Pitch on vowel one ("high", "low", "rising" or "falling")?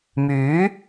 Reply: rising